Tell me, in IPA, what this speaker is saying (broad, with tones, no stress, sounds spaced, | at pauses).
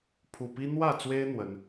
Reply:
pʰ u˨˩ p i˦ n̪ w ä˥˨ t͡s w e˦ ɪ̯ n̪ w ə˨˦ n